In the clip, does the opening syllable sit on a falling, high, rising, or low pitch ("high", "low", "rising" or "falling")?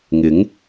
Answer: rising